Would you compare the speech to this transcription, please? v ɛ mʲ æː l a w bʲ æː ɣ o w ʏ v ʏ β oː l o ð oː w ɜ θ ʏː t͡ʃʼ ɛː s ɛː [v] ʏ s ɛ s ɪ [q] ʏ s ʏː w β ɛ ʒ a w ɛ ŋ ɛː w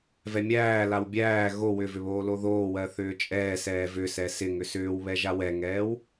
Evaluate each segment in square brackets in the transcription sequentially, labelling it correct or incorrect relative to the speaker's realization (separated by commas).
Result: correct, incorrect